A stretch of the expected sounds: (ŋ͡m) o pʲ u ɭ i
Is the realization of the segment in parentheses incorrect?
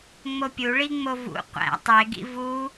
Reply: no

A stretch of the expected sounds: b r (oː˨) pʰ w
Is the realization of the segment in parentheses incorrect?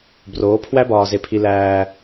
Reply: yes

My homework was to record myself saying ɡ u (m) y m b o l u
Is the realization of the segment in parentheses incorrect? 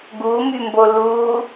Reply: no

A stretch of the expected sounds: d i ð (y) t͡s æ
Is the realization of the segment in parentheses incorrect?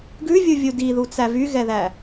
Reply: yes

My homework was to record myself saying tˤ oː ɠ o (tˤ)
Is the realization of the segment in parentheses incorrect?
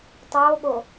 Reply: yes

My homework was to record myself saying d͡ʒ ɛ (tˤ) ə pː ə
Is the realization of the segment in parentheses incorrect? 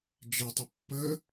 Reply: no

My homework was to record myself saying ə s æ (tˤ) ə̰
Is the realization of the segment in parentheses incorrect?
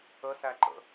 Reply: yes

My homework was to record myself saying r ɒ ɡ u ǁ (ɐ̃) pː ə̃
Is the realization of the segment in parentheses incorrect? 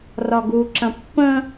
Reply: no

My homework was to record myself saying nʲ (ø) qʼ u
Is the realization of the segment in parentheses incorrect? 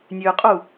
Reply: no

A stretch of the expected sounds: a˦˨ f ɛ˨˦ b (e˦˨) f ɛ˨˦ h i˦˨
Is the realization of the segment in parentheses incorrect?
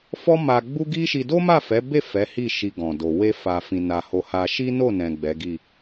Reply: no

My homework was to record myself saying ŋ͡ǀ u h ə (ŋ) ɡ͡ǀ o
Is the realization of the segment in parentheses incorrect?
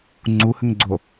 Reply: no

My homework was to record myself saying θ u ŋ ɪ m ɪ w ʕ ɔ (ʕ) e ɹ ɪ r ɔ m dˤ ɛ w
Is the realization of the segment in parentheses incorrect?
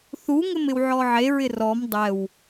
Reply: no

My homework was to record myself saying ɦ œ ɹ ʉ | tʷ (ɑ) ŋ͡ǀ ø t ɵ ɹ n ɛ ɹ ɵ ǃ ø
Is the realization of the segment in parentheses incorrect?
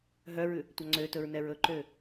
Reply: no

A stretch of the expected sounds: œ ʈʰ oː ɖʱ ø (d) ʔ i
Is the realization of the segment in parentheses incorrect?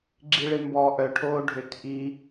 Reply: yes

